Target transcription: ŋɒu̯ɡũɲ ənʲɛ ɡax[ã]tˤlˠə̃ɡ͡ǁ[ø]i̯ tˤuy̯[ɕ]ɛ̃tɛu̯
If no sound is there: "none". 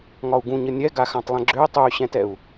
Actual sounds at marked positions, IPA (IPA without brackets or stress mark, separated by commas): ã, ø, ɕ